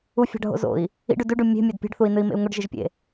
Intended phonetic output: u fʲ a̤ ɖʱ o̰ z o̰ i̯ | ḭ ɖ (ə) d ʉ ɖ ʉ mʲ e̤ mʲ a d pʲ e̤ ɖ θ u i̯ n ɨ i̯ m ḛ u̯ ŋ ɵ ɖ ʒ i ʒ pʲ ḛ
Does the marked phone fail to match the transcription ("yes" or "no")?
yes